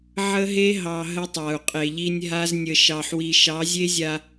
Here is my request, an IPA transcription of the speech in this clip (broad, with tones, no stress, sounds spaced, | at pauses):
ʕ ə˦ ɦ e˦ ɦ ɑ˨ ɦ ə˦ tˤ a˨ u̯ qʼ e˨ ʎ i˦ nʲ ɦ a˦ z nʲ ə˨ ʃ ɑ˨ ħ w i˨ ʃ ɑ˨˦ zʲ e˦ zʲ a˨